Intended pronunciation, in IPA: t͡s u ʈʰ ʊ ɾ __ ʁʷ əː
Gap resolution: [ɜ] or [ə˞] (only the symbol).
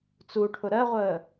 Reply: ɜ